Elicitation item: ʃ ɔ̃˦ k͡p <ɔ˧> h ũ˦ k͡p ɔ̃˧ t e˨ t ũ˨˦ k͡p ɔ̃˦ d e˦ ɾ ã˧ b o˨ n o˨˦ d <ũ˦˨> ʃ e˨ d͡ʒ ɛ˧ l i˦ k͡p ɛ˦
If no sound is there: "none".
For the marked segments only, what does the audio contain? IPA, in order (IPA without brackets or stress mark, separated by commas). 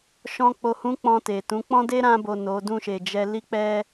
o˧, ũ˦˨